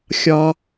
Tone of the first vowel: high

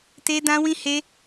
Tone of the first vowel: high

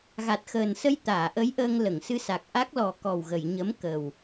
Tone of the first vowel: low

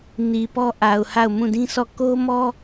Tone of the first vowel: low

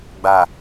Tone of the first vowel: low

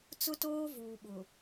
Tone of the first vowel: high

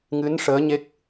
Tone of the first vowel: rising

